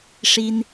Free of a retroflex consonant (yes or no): no